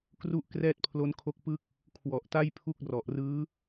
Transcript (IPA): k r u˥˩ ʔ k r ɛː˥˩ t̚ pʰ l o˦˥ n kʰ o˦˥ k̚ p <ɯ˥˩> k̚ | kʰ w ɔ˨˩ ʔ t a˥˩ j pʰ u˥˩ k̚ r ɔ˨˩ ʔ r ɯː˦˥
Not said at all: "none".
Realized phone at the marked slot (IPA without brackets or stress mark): ɯ˥˩